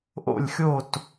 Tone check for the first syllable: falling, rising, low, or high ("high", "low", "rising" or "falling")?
falling